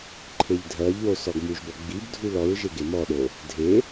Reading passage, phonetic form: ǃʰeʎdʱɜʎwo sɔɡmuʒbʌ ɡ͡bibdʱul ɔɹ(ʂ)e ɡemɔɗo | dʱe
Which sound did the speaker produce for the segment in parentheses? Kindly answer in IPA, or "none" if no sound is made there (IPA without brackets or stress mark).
ʒ